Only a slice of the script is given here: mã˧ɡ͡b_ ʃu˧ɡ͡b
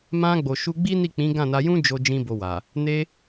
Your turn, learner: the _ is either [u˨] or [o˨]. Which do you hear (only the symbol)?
o˨